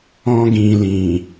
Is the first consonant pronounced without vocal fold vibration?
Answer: no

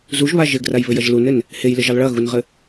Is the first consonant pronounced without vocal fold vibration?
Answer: no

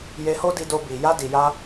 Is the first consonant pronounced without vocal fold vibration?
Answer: no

